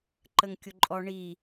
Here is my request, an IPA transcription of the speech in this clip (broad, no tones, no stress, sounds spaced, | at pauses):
ǃ ə ŋ kʲ ʊ ǃʼ ɔ ɳ i